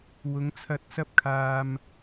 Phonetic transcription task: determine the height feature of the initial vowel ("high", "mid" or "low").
high